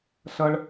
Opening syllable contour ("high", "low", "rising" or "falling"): high